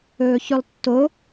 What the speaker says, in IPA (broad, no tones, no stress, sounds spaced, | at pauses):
ɵː ç ʉ lˠ tː o